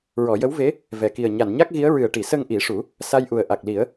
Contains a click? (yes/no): no